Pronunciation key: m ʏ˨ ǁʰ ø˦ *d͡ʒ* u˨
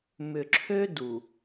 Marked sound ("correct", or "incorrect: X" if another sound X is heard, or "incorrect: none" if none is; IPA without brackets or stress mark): incorrect: d